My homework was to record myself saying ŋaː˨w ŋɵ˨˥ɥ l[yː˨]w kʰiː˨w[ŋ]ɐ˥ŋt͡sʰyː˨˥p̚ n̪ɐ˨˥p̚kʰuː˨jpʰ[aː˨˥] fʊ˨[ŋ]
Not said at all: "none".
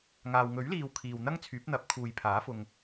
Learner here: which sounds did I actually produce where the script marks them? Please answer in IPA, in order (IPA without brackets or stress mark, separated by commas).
iː˨, n̪, aː˨˥, ŋ